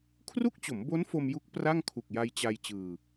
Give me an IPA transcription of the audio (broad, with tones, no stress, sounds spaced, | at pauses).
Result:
kʰ r u˥˩ k̚ t͡ɕ o˩˦ m b o˦˥ n f o˧ m j u˦˥ k̚ p r a˥˩ ŋ kʰ u˨˩ k̚ j a˧ j t͡ɕ a˧ j t͡ɕ ɯː˧